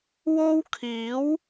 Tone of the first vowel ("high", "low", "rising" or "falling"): high